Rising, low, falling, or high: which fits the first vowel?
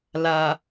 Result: low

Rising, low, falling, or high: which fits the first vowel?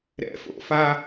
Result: high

